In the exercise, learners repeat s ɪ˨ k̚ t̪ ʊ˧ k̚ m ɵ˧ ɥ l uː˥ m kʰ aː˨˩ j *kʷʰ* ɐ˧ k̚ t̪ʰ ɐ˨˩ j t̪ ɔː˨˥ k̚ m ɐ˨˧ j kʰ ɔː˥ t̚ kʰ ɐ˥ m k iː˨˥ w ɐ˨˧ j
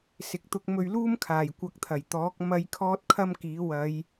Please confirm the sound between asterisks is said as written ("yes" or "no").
no